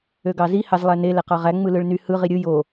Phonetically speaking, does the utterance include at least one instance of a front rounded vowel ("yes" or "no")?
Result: yes